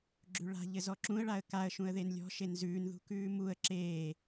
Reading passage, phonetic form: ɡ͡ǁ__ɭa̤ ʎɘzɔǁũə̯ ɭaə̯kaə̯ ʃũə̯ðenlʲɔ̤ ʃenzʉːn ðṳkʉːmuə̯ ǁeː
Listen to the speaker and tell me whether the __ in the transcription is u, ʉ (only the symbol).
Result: ʉ